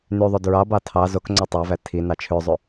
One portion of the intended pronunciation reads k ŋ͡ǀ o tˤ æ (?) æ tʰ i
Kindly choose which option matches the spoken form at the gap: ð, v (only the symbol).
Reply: v